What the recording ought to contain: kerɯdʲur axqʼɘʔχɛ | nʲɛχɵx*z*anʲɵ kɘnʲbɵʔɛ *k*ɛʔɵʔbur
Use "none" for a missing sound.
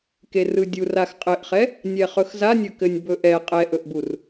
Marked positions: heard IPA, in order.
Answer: z, qʼ

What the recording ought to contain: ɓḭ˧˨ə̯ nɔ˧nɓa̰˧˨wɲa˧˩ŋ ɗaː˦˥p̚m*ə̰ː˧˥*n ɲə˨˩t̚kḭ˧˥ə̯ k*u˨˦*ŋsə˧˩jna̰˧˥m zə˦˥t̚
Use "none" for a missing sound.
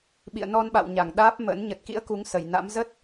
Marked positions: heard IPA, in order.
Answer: ə̰ː˧˥, u˨˦

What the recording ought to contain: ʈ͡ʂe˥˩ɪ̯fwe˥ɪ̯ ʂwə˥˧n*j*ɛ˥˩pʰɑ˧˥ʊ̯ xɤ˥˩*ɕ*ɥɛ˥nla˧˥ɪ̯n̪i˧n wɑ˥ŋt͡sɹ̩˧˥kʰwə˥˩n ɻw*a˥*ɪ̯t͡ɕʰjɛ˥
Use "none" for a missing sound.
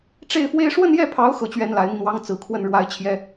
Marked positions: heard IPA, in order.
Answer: j, t͡ɕ, a˥

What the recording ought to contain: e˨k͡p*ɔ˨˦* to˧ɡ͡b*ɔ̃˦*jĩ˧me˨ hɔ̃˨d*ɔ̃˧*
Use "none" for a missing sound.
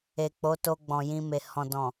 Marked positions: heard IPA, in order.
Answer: o˨˦, ɔ̃˨, ɔ̃˨

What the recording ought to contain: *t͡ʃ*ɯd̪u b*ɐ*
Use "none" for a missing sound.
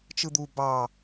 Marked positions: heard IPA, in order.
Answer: t͡ʃ, ɑ

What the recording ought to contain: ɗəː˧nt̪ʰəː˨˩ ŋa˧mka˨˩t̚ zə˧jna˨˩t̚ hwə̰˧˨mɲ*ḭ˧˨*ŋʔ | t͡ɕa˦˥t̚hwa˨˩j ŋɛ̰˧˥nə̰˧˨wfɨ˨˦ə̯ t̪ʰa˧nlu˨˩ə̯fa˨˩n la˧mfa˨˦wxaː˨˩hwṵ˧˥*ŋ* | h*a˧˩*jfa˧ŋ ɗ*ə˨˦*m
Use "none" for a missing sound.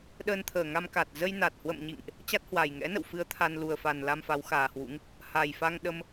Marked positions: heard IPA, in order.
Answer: ḭ˧˨, ŋ, a˨˩, ə˧

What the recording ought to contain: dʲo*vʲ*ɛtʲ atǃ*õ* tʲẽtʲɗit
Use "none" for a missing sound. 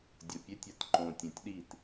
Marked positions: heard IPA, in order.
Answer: pʲ, õ

